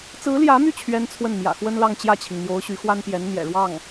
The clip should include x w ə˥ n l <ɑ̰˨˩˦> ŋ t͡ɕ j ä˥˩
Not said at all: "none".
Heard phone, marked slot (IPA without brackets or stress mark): ɑ˥˧